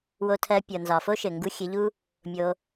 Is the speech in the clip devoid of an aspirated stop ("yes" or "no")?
no